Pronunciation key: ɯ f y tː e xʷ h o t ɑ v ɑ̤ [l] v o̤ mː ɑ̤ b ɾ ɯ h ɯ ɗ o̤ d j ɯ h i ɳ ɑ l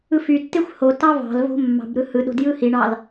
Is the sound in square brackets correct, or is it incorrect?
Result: correct